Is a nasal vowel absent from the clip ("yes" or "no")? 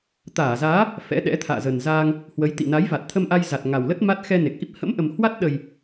yes